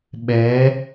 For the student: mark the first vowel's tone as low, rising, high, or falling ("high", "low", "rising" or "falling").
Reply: rising